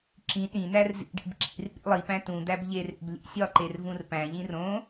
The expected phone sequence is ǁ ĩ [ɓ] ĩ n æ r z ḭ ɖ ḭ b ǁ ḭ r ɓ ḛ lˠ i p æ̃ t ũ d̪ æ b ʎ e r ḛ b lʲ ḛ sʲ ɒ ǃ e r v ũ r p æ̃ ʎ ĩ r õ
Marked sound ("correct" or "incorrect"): incorrect